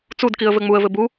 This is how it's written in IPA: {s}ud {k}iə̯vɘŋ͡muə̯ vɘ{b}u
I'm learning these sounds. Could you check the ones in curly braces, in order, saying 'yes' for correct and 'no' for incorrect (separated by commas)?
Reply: no, yes, yes